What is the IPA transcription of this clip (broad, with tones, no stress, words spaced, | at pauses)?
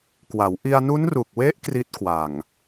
kwa˩˦w ʔi˧a̯nu˦˥nru˨˩k̚we˦˥ʔ kri˦˥t̚kwa˨˩ŋ